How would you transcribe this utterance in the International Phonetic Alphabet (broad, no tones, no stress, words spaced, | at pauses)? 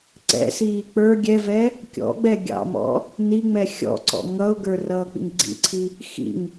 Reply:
ǀɛ̰siː k͡pə˞ ɡʲɛvɛ | kʲɔ̰ɡ͡bɛ ɡʲɑ̰mɔ̰ | niŋ͡mɛ xʲɔ̰ǀɔ̰ ŋʌʊ̯ɡə˞ rʌːk͡pḭŋɡ͡ǀḭǀʰi | xḭŋ